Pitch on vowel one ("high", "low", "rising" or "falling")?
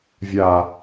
low